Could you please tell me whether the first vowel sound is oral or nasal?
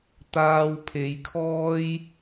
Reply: oral